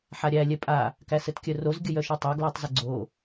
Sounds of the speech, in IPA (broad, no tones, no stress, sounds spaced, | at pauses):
ħ a ɾʲ æ lʲ ɛ pʼ a | k æ s ɘ t kʲ œ r o z ɡʲ ə j œ ʃ ɛ tˤ a ɡ l æ tˤ z ə ɡ͡ǀ o